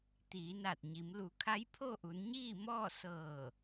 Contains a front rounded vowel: no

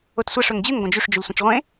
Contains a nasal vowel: yes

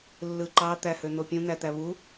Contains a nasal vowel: yes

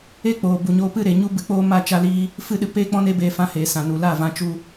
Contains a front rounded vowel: no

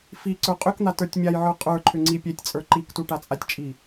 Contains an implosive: no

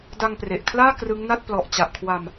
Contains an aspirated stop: yes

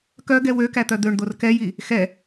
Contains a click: no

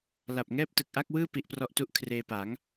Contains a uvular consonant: no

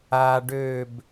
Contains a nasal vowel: no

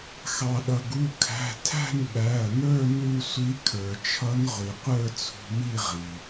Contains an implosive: yes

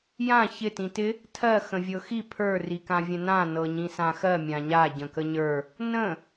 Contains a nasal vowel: yes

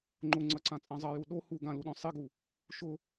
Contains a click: yes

